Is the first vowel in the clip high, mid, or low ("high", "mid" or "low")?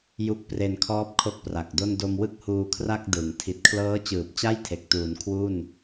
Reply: high